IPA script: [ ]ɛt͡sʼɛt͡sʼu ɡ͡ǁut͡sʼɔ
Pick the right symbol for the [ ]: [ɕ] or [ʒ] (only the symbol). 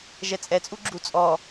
ʒ